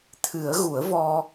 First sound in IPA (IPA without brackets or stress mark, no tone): t̪ʰ